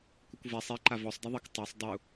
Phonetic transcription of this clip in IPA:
kʷəkʷvɛ sˤi ǃavɔsˤ dɛðˤək tˤɛsˤ dˤu

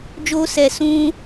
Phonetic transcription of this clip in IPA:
d͡ʒoː˦sɛ˧ sũ˦

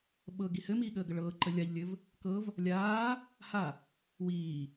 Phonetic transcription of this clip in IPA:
ɓɤɡi hɘmiːɠəːɡə ɭɤːǃə lʲaʎlʲɘv | kɤv | lʲaː | ha | wiː

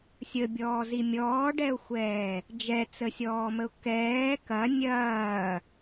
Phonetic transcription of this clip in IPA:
sʲəbʲɔːzi mʲɔːɖɛʊ̯xʷɛː | d͡ʒɛt͡səsʲɔːməʊ̯ kɛː kɐ nʲɐː

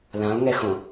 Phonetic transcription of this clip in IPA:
lão̯ŋɛxõ

